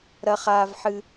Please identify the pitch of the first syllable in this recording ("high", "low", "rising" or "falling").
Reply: high